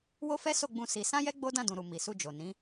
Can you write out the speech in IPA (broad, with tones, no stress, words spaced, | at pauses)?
wo˦fɛ˦so˦˨ɡ͡bũ˧ si˧ sã˦jɛ˦ ɡ͡bo˦ dã˦˨dũ˨ɾu˨ mi˨su˧d͡ʒo˨ nĩ˨˦